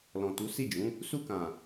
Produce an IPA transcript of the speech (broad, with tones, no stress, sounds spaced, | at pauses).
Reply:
l ɔ̃˨ t u˨˦ s i˦˨ d͡ʒ ũ˨˦ | s u˧ k ã˨